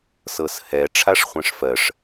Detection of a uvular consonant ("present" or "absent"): present